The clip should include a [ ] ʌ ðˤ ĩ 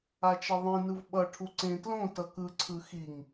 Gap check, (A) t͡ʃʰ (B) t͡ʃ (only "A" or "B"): B